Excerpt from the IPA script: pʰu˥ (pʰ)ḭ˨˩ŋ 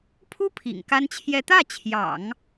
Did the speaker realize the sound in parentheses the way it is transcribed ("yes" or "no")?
yes